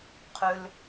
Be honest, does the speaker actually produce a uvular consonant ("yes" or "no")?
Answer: yes